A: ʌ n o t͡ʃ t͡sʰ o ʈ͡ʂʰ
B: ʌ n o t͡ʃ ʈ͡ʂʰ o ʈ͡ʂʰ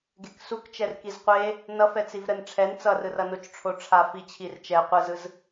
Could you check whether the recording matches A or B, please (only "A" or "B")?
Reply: B